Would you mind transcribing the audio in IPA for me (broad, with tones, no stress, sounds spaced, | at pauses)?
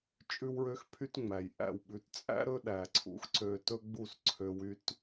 t͡ʃʼ ʉ˦ w ɹ ø˦ x pʰ y˦ t ŋ͡m æ˨ j ʔ æ̰˦˨ w ɓ ʉ˨˦ t t͡sʼ æ̰˦ ɾ ɵ˦ ɗ æ˨ ǀʰ ṵ˧ x ǀ ø˧ t ɵ˦ ɡ͡b u˦˨ s ǀʰ ø˧ w y˦ t